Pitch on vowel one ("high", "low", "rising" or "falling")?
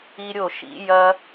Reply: high